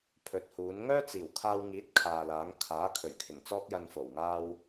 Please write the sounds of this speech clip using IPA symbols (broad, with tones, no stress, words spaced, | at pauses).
pʰɵ˨t̚huː˨˥n ŋœː˥t͡siː˨˩wkʰaː˧wŋiː˨˥t̚ kʰaː˨laː˨˥ŋ kʰaː˨˥kʰɵ˨˩ɥkʰɪ˨˩ŋ t͡sɔː˥k̚jɐ˧nfo˨˩wŋaː˥w